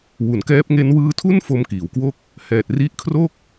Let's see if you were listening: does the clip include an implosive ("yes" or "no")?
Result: no